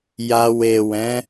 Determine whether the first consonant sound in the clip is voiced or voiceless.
voiced